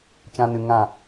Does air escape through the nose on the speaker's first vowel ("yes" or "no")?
yes